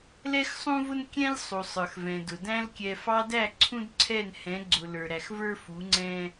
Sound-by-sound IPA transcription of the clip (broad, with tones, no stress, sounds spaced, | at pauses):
l ɛ˦ x sˤ ũ˦ v ʊ˦ n kʲ ɛ̃˦ lʲ sˤ u˨ sˤ ə˞˨ x v ɛ̃˨ d ʊ˨ d æ̃˧ l kʲ ɛ˨ f ɑ˧ d æ˦˨ ǀʰ ũ˦ d ǀʰ ɛ˦˨ n h ɛ̃˨˦ ɡ͡ǀ ʊ˨ l ə˞˨ ɾ æ˨ x v ə˞˦ f u˨˦ ŋ͡ǀ ɛ̃˦